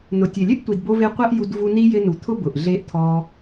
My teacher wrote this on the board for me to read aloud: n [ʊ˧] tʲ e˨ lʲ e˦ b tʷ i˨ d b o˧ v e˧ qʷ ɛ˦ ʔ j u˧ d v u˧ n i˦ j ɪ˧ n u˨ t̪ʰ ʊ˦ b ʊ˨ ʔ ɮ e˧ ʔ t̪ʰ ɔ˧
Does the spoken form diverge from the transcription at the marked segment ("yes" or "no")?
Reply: yes